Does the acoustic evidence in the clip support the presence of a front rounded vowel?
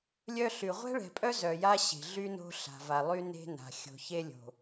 yes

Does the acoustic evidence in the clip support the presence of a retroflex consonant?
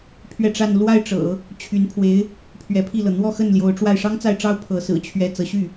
yes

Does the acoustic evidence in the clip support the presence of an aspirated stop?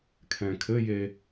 yes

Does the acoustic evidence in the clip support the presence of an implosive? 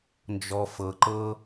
no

